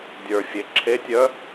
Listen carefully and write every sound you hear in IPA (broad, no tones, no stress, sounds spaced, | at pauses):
dʲ ə˞ fʲ e ǁʰ e tʲ œ